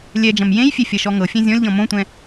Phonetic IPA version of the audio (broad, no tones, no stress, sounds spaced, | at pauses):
lʲ ɛ d͡ʒ ɐ̃ m j ẽ j fʲ e fʲ ɐ ʃ ɔ ŋ ɤ fʲ ɛ̃ zʲ ɔ̃ lʲ ʎ ɔ̃ m õ tʷ ɛ̃